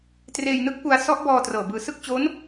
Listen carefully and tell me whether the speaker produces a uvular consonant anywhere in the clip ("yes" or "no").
no